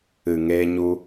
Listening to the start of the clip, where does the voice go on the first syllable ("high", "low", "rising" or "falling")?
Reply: low